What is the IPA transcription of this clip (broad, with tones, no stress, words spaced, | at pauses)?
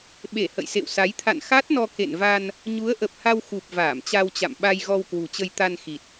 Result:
ɓe˧˩ hə̰˧˨jsḛ˧˨wsa˨˦j t̪ʰa̰˧˨nxa˦˥t̚nɔ˧ kḛ˧˨nva˧n | ɲu˨˦ə̯ʔə˨˩p̚ha˧w xu˨˩p̚ vaː˧˩mt͡ɕa˧wt͡ɕa̰˧˨m ɓa˧j ɣɔ˧wkwṳ˨˩t͡ɕə˧j t̪a˧nxi˨˩t̚